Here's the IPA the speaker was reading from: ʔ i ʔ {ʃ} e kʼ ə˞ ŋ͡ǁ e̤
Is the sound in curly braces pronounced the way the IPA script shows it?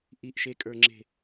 yes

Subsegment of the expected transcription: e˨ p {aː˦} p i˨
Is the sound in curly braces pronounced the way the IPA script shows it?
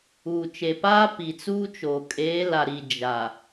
yes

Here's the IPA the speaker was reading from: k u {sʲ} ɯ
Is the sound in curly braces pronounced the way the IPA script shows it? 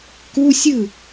yes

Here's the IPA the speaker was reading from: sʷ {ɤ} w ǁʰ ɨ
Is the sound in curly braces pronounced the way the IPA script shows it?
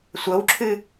yes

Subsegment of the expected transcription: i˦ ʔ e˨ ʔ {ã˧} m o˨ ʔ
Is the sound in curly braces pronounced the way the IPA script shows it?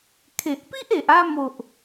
no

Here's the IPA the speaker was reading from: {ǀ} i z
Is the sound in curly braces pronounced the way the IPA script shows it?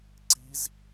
yes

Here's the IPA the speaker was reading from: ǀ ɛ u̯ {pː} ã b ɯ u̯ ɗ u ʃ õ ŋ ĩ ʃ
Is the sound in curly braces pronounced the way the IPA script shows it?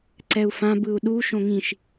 no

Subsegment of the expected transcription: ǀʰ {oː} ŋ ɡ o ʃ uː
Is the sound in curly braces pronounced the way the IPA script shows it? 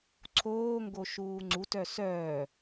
yes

